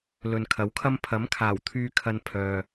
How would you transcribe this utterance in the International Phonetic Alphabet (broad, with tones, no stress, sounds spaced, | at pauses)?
l ɵ˨ n kʰ ɐ˨˥ w kʰ ɐ˥ m pʰ ɐ˨˥ m kʰ aː˨˩ w t̪ʰ yː˧ kʰ ɐ˧ n pʰ œː˨